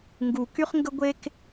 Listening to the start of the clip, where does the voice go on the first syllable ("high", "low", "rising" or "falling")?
low